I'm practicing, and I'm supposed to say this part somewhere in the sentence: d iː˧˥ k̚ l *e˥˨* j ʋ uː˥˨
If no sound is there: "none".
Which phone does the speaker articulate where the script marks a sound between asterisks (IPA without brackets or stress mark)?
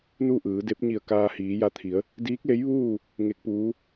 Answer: e˧˥